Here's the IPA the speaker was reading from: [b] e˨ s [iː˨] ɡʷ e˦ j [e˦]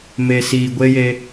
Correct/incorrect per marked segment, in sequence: incorrect, correct, correct

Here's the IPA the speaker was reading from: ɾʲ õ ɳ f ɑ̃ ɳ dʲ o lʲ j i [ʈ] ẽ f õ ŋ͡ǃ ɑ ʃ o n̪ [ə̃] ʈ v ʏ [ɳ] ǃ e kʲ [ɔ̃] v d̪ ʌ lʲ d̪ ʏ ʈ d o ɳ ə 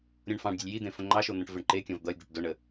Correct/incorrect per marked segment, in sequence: incorrect, correct, correct, correct

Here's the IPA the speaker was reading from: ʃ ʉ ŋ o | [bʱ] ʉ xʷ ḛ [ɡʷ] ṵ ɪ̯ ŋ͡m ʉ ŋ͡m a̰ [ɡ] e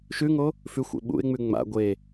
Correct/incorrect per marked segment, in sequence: incorrect, incorrect, incorrect

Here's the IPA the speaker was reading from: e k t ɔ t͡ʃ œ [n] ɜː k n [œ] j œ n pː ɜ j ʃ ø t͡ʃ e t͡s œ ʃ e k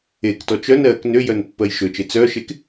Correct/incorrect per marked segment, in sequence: correct, incorrect

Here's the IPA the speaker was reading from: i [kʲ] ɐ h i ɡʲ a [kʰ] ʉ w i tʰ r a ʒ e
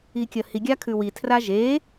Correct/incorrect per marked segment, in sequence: correct, correct

